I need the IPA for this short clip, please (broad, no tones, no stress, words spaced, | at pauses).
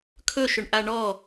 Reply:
kʰɵʃɵɳʔa ɳɔ